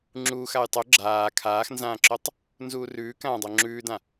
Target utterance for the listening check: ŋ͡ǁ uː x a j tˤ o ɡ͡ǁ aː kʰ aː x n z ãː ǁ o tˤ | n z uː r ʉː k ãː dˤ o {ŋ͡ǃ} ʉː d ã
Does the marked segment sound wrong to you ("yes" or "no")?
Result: yes